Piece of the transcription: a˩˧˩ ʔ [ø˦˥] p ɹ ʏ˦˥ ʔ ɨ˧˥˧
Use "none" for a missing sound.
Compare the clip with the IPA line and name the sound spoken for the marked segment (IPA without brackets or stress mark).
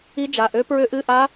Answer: ø˦˥